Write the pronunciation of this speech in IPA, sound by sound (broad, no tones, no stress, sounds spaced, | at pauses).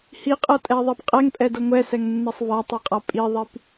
h i qʼ ɤ tʼ ɛ ðˤ ɛ p qʼ ɛ ŋ pʼ ɛ d ɤ ŋʷ ɛ s ɛ ŋ nː ɤ sˤ v a tˤ i qʼ a pʼ i ðˤ i p